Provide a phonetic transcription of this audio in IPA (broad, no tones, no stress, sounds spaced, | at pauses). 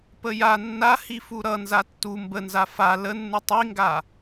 p ə j a nː a h i f u ɾ ʌ n z a tː u m b ə n z a f a l ə nː u tˤ i ŋ ɡ a